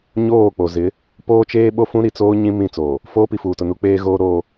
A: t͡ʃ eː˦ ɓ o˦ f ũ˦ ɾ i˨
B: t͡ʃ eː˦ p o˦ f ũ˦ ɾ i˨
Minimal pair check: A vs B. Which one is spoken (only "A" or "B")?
A